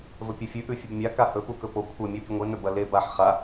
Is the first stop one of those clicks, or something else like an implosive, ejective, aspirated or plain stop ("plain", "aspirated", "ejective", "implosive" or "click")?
plain